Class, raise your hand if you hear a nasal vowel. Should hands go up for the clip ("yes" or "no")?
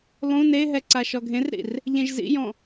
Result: yes